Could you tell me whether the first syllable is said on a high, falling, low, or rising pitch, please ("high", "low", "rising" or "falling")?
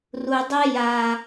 low